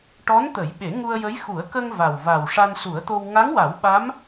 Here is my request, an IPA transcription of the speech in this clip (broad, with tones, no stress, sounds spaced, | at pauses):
ʈ ɔ˧˥ n t̪ ə˨˩˦ j ɓ e˨˩˦ ŋ u˧ ə̯ j ə˧˥ j x u˨˩˦ ə̯ k ə˧ ŋ v a˨˩ w v a˨˩ w ʂ a˧ n s u˨˩˦ ə̯ t̪ o˧ w ŋ a˧˥ ŋ w a˨˩˦ w ɓ a˧˥ m